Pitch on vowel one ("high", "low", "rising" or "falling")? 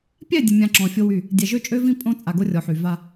falling